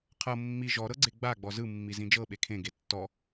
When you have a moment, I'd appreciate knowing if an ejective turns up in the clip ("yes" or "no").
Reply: no